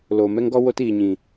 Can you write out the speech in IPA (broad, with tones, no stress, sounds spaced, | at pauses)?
l oː˨ m ɛ˦ ŋ ɡ ɔ˦ w o˧ t iː˨ ɲ ĩ˨